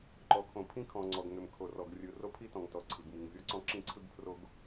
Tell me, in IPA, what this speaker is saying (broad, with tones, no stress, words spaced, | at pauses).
ǃɔ˩kʰõ˩pʰĩ˥kʰɔ̃˩ ŋ͡ǀɔ˩ɡŋʏ˩m kʰo˩rɔ˩ɡrʲɯ˩ ro˥pʰi˥tɔ̃˩ŋtɔ˩ ǀʰi˩ɡmi˩ŋvʲɔ˥ǀɔ̃˥ ǁĩ˥ǀʰɯ˥ɡpʰro˥ɡ